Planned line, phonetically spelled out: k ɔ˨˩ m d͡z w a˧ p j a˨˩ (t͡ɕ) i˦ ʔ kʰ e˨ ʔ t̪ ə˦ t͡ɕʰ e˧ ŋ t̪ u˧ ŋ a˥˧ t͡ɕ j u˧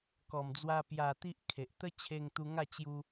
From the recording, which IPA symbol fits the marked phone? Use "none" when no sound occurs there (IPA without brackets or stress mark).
t̪